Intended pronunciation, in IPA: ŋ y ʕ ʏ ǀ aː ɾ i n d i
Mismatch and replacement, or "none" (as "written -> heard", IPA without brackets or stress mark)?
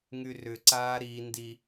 ʕ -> r